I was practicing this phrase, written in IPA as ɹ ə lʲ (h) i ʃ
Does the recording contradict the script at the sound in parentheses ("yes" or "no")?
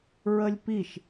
yes